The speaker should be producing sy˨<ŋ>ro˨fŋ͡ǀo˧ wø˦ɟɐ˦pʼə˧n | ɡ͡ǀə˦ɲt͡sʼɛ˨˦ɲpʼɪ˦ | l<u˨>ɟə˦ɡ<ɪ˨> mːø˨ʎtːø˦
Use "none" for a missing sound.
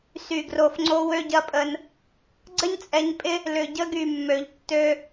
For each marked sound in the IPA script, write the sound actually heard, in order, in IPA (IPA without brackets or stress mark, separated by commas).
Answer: ɡ, ʏ˨, y˨